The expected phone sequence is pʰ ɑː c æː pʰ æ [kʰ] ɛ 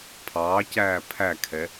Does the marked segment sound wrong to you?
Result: no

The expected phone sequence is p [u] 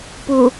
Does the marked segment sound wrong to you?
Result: no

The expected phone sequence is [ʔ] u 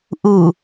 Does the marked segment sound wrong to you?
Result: no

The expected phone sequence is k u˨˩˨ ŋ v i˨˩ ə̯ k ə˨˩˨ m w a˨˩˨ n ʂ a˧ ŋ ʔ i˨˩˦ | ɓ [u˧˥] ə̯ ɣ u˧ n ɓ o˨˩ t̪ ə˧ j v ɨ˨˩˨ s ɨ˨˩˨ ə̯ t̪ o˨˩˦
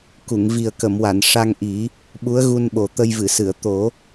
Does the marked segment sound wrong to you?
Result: no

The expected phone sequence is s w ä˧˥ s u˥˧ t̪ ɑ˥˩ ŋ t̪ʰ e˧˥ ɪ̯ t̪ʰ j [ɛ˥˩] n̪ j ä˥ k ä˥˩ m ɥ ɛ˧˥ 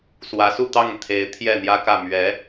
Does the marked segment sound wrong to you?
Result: no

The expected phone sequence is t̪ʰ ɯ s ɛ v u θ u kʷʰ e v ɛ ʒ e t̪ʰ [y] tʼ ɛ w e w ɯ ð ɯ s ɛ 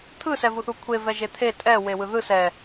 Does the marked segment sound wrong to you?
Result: yes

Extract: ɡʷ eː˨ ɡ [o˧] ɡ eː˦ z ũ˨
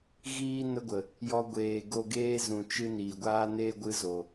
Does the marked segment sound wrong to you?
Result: no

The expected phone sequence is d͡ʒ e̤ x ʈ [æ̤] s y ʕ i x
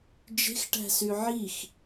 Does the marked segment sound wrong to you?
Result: no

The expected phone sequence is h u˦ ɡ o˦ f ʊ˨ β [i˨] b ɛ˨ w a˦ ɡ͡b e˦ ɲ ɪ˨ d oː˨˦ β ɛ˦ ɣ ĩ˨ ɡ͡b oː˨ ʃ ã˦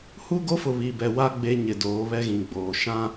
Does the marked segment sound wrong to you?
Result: no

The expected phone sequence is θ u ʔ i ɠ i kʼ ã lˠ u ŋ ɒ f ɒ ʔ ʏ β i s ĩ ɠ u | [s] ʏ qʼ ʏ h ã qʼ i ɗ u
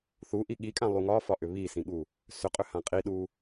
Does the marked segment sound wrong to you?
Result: no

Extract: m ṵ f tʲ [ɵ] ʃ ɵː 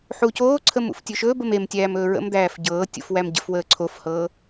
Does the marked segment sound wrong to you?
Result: no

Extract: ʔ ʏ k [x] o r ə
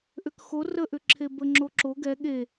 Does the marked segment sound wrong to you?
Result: no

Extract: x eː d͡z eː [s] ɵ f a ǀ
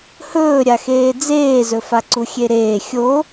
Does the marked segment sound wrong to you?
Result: yes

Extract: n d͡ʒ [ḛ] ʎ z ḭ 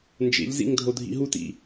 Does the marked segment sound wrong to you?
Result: no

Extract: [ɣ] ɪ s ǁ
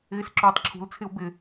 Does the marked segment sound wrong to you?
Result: no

